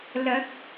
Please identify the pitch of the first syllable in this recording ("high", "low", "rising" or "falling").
rising